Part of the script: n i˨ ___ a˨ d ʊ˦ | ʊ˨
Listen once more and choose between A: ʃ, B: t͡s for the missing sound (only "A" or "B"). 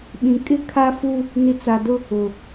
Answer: B